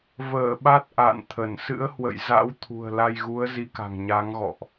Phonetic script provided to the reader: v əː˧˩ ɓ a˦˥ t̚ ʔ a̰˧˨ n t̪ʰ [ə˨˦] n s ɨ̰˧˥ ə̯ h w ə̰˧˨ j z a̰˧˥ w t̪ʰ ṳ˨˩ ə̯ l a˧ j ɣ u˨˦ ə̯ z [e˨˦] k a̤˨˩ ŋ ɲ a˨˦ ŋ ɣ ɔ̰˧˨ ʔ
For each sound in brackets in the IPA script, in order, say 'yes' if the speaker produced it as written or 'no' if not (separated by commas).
no, no